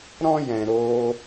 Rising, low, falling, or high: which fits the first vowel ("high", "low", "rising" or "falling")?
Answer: high